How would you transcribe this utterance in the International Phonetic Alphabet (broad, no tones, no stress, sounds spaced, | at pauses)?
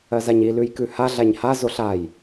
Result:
ɜ z a ɲ i l ʉ j k ʉ h a ɮ a ɲ h a z o ɬ a j